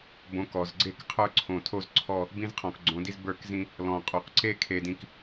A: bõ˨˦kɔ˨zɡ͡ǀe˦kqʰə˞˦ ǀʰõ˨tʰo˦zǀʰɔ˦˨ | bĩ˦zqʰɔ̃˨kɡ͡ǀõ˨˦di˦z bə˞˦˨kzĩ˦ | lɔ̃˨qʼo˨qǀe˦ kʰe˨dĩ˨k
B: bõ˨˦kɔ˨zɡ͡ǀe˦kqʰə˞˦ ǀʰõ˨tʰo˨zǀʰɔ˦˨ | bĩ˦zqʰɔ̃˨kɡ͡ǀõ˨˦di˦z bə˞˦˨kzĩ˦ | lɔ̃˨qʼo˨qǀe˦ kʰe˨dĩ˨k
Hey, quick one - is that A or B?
A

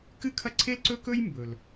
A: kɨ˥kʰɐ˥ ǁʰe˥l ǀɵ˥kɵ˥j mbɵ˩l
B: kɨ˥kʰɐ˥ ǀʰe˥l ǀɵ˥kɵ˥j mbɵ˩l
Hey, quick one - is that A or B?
B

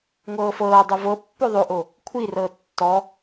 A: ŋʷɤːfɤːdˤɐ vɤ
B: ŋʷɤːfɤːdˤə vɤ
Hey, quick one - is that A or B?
B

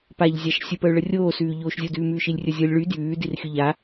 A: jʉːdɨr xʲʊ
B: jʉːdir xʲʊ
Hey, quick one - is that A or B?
B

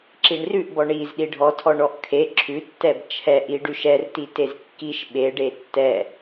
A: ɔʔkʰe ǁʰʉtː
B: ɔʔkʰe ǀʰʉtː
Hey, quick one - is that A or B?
A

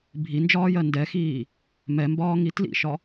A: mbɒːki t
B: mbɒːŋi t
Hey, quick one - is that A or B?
B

